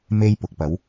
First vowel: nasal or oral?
oral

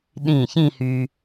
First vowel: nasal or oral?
nasal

